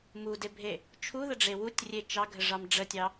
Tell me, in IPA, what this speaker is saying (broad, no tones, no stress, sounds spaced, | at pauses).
m u d e bʱ e | t͡ʃʰ u ð ə ɖ͡ʐ e w u tʲ rʲ e t͡ʃ ɑ ɡʱ ə ʐ ɑ m ɖ͡ʐ ə tʲ ɑ